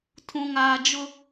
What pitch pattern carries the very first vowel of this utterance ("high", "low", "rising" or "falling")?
low